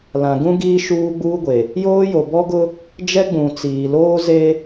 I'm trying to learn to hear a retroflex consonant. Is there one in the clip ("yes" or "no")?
no